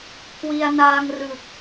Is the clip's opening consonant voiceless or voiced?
voiceless